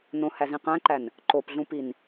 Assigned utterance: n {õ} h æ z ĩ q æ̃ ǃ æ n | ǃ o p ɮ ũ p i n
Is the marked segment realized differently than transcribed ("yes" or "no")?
no